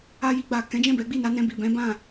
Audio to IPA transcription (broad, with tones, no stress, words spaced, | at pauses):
a˧ji˧ ɡ͡ba˨kɛ̃˨˦d͡ʒɛ̃˦˨bɛ˨˦ ɡ͡bi˦˨na˨˦nɛ̃˧bi˨ bɛ̃˨˦ bã˦˨